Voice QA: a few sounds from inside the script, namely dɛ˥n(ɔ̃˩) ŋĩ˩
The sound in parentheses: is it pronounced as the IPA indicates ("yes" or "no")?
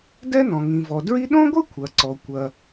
yes